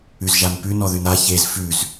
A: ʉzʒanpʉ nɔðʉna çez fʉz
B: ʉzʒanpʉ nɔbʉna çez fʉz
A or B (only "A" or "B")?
A